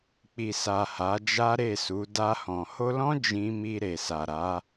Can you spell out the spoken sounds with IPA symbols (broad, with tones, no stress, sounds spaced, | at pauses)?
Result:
k͡p i˨ s a˨ h a˨˦ d͡ʒ a˦ ɾ e˦˨ s u˨˦ d a˧ h ɔ̃˨ h o˧ l ɔ̃˦ d͡ʒ ĩ˦ m i˧ ɾ e˨ s a˨ ɾ a˨˦